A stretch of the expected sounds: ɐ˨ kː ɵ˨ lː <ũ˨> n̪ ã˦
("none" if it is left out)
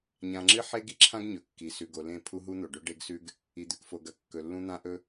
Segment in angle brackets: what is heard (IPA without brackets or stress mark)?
ũ˦